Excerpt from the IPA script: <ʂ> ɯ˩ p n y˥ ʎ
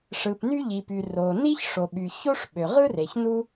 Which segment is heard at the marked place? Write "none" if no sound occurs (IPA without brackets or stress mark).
ʂ